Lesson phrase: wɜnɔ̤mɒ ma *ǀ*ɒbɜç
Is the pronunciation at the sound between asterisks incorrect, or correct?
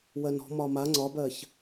incorrect